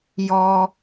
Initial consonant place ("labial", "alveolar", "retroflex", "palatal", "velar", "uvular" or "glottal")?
palatal